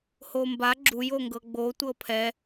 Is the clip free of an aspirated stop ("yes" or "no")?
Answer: no